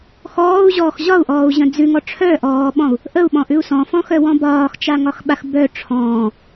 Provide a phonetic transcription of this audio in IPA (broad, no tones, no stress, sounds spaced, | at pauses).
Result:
x ɔː u̯ ʑ ɔː x ʑ ɒ u̯ ʔ ɔː u̯ ʑ ə̃ d͡z ʉ ŋ ɔ ʈ͡ʂʰ œ ʔ ɔː ɓ ɔ̃ u̯ | ʔ ə u̯ ɓ ɔ̃ ʔ ʉ u̯ s ɔ̃ f ɔ̃ x œ w ɔ̃ b ɒː x t͡ʃ a ŋ ɒ x ɓ a x b œ ʈ͡ʂʰ ɔ̃ː